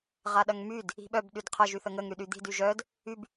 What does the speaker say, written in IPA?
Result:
ʁaɗɐŋmyd | i̤ɓœb ɗydqʰɐ ʒyθəŋəŋ ɾyɗyd̪i̤d yʒœd | yb

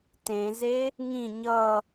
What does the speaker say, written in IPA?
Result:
tẽze | ŋĩ ɲʌ

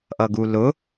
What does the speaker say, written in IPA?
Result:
ʔʌɡulʊ

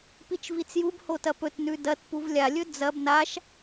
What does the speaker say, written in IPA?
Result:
pit͡ʃvit͡sjubho tɐpɵtnʉ dɐt puvlʲalʲɵ d͡zɐb naʃ

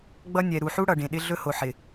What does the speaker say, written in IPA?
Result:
ɡ͡bʌ˦ nʲɛ˨ɾu˨ħu˦ ɽʌ˨ɖẽ˨ɗɪ˦ ɮɵ˦ho˨ħɪ˨

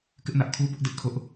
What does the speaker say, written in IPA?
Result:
kɪ˦ʔ nä˦ʔ kʰu˦bʊ˦ʔ dɪ˦ʔkʰʊ˦ʔ

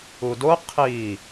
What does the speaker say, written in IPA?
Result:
udo qʰi

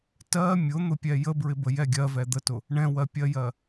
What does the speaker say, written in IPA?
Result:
tɜ mʲʊn̪ʊpʲɛ jəbɹɪbəjɛ ɡʲɜvɛ d̪ətʊ | ɳɛ̃wɜpʲɜjɜ

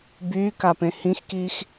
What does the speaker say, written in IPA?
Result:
byːkapẽ hĩxkiːx

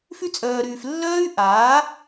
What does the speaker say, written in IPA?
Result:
fy˦t͡sʼœː˨ɾyː˨f lːœː˦y̯ʔaː˨˦

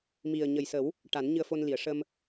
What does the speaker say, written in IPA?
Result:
mi˨˩ə̯ɲə˨˩jsə˨˩˦w | ʈa˨˩˦nɲɨ˧ə̯fo˧nli˨˩˨ə̯ ʂə˧m

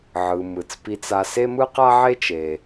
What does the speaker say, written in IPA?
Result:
ʕɯ˩ mɯ˩t͡spi˧t͡sa˧ se˥mɯ˥qa˥ ʕe˥t͡ʃe˩

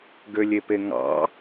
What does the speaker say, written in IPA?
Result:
ɡølʲepeŋɑ̰

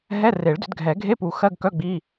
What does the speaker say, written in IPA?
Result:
ɦɛ˧˥˧re˨˩˦ɭdʏ˨˩˦dɡʱɛ˨˩˦ ɡʱe˧˥˧pu˨˩˦ xɜ˧˥˧ɡkœ˧˥˧ ɡ͡bi˧˥˧

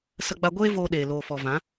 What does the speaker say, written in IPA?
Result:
sə˧ɡ͡ba˧ ɡʷeː˦voː˧ ɗeː˨loː˨fɔ˨ vã˨˦

